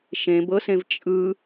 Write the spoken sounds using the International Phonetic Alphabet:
ʃ ẽ b ɤ s ẽ v t͡ʃʼ ɯ

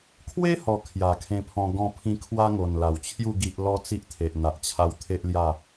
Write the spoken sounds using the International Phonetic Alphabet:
kʰ w e˦ h ɔ˨˩ kʰ j a˨˩ kʰ ẽ˧ pʰ ɔ̃˧ ɡ ɔ̃˧ pʰ ĩ˧ kʰ w a˦ ŋ o˨˩ n l a˨˩ w t͡ɕʰ j u˥˧ ɡ i˦ ʔ l ɔ˦ t͡s i˦ ʔ t̪ʰ e˨ ʔ n̪ a˨ ʔ t͡ɕʰ a˧ w t̪ʰ e˦ ʔ l j a˥˧

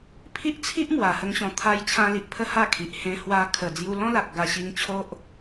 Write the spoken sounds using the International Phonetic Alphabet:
pʰ i˦ ʔ t͡sʰ i˦ ʔ m w a˨˩ h ə˧ ŋ ɕ ɔ̃˨˩ t̪ʰ a˧ j t͡ɕʰ ã˧ l i˨ ʔ pʰ ə˥˧ h a˥˧ kʰ i˨ ʔ h ẽ˧ h w a˧ kʰ ə˨˩ d͡z j u˧ l ɔ̃˦ l a˨ k̚ ɡ a˧ ɕ i˧ ŋ t͡ɕʰ o˦ ʔ

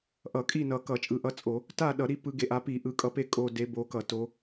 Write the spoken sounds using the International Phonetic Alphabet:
ʔ ʌ˧˩˧ kʼ i˦˨ n ʌ˨˩ k ʌ˧˩˧ t͡ʃʼ ɯ˨˦ ʔ ʌ˨˦ t͡sʼ o˧˩˧ | t a˦˨ ɗ ʌ˧˩˧ ɾ i˨˦ p ɯ˨˦ ɡ e˨˩ ʔ a˨˦ p i˧˩˧ ʔ ɯ˨˩ kʼ ʌ˨˦ p e˦˨ kʼ o˦˨ d e˨˦ b o˨˦ k ʌ˧˩˧ t o˨˦

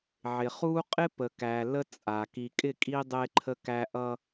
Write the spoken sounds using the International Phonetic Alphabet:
ʕ ɪ˨ χ u˦ qʼ ɪ˦ p ə˨ k æ˨ l ə˦ t͡sʼ a˨ k i˨ kʼ ɪ˦˨ kʼ i˦ dˤ e˦ ǃʰ ə˦ k æ˦ ʔ ʌ˦

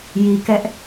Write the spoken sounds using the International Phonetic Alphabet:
j i˨ k ɛ˦ ʔ

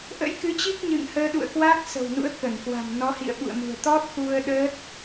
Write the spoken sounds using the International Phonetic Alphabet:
ʔ ə̰˧˥ j k ɨ˨˦ t͡ɕ i˦˥ k̚ ɲ ɨ̰˧˨ ŋ h əː˧ ɗ ṵ˧˨ ə̯ k w a˦˥ k̚ s ə̤˨˩ w n ṵ˧˥ ə̯ k ə˧˩ n k w a̤˨˩ m n ɔ˨˦ h ḭ˧˨ ə̯ ɓ ṵ˧˨ ə̯ m ṳ˨˩ ə̯ t̪ ɔ˦˥ t̚ x u˧ ə̯ ɗ əː˦˥ t̚

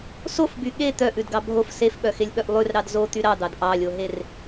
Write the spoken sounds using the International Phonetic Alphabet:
s o f b y ɠ e t̪ œ ʔ ʉ d ɡ ɑ bʱ o f s e f ɓ œ x e lʲ ɓ œ ʔ lˠ ʉ r ɾ ɑ d z o t̪ y ɾ ɑ d̪ ɑ d ʔ ɑ lʲ o ɦ e r

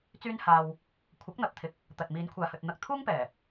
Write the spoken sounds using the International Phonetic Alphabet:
t͡s yː˥ n h aː˧ w | kʷʰ ɐ˨˥ k̚ n̪ ɐ˨ p̚ t̪ʰ ɪ˨ k̚ | t̪ ɐ˨ t̚ m iː˨˧ n kʷʰ aː˨ h ɵ˨ t̚ n̪ ɐ˧ k̚ t̪ʰ uː˥ ŋ p ɛː˨˩

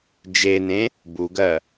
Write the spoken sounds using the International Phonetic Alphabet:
d͡ʒ e n ẽ | b u ɡ ɜ

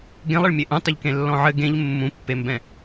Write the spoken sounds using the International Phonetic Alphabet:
ɡ ẽ lˠ ɘ ɭ mʲ e ʔ ũ tˤ ɘ ʎ k ẽ lː ɔ̃ ʕ ɘ ɡ ẽ ʎ mː ũ pː e m b ɛ̃

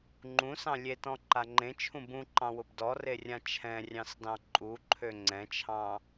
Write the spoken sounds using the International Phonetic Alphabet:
ŋ͡ǃ ũ s ɑ̃ lʲ e t ɔ̃ ǃ a ŋ͡ǃ ẽ t͡ʃʰ ũ b ũ ǃ ɑ̃ w ʊ b d ɔ r e rʲ ã t͡ʃʰ ɛ̃ rʲ ɑ̃ s d ɑ̃ ǃʼ u ǃʰ ø ŋ͡ǀ ɛ̃ t͡ʃʰ ɑ̃

